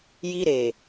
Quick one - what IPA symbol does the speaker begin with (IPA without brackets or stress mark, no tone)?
j